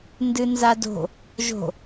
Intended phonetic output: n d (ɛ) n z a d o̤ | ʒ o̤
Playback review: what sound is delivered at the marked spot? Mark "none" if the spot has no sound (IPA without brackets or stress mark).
ɨ